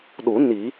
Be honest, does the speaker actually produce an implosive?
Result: yes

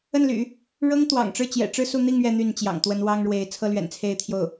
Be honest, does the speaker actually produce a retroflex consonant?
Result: yes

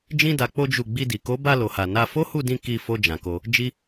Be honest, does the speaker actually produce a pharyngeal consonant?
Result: no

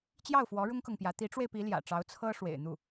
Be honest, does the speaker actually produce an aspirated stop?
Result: yes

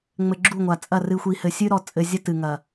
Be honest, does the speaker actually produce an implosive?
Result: no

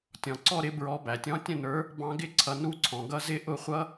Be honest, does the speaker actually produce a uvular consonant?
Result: yes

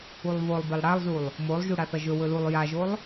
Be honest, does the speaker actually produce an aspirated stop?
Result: no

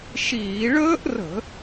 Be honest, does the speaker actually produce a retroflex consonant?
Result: yes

